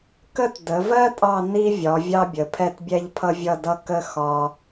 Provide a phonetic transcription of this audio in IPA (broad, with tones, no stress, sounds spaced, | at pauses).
k ə˥ t d ə˩˧ v ɜ˥ tʼ ɑ˥˧ n i˥ vʲ ɒ˩˧ vʲ ɑ˥ bʲ ə˩˧ pʰ ɛ˥˧ t bʲ ɛ˥ ʎ pʰ ʌ˥ vʲ ʌ˥˧ d ʌ˥ k ə˥ x ɒ˥